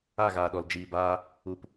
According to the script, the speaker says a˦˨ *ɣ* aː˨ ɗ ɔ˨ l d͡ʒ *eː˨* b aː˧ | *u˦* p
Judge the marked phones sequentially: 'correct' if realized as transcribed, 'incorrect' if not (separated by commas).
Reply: correct, incorrect, incorrect